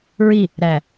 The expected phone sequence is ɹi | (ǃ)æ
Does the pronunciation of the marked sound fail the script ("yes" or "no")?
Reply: yes